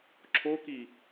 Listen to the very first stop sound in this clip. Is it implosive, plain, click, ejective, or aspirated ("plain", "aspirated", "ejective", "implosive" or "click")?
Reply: click